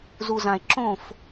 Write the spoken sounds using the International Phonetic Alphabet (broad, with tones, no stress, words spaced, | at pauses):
zu˨zã˨e̯ ǁõ˦˨f